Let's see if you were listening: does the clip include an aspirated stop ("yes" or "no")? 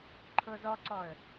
yes